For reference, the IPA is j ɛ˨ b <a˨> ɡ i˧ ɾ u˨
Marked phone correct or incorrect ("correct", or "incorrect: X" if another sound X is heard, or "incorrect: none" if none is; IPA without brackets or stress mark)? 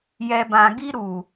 incorrect: ã˨